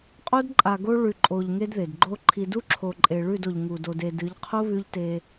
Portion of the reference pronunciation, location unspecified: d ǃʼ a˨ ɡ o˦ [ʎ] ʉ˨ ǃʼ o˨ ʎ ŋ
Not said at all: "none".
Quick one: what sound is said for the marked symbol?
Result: ɭ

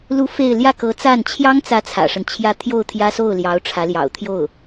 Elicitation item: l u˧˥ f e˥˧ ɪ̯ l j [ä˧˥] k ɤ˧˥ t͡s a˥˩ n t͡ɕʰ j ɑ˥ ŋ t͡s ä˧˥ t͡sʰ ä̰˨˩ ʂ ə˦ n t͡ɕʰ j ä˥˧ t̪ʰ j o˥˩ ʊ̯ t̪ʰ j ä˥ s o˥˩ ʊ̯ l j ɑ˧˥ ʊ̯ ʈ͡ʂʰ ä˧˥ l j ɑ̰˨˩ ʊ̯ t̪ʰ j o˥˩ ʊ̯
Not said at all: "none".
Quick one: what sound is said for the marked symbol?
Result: ä˥˩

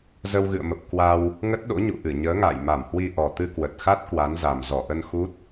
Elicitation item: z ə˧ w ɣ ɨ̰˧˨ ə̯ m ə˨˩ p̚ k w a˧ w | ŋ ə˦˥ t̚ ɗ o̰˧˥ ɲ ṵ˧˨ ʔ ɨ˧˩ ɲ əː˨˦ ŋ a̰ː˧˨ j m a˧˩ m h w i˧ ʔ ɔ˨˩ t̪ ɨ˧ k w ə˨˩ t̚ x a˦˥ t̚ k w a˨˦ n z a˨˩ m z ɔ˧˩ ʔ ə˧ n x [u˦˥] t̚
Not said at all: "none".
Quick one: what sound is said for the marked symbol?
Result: u˦˥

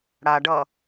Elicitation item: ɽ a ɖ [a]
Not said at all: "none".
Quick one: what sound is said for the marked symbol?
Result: ʌ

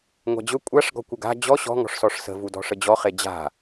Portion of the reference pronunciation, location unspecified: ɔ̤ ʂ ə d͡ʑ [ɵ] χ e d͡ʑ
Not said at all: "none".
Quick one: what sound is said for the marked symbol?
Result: ɔ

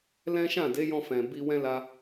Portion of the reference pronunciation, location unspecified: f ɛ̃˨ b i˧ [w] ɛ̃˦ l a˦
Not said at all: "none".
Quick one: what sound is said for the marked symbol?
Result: w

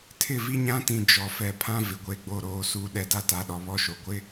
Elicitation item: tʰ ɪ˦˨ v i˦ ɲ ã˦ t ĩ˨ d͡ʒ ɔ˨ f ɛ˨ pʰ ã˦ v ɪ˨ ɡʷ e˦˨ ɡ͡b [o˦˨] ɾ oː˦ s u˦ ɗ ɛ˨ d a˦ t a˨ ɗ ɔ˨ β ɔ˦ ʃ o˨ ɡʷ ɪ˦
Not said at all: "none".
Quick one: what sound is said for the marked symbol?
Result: o˦˨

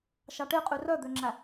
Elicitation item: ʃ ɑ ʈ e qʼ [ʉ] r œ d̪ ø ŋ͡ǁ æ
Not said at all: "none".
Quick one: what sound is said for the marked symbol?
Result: ʉ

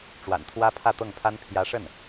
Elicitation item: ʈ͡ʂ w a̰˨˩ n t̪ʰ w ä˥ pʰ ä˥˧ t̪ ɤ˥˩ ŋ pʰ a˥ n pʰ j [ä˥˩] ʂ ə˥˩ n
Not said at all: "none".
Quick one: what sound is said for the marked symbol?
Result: ä˧˥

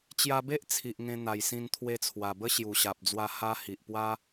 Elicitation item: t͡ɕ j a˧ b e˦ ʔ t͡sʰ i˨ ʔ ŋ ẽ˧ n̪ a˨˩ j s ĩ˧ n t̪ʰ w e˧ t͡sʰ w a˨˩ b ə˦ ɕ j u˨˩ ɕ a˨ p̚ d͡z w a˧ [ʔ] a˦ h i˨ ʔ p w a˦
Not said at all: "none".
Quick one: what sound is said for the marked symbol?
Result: h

